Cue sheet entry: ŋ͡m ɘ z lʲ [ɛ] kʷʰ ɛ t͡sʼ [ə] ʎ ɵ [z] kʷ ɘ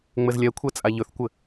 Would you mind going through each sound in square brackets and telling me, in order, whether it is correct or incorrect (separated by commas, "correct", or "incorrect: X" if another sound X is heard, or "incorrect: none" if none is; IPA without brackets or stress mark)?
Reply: correct, incorrect: a, incorrect: θ